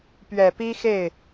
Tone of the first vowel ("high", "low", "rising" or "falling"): low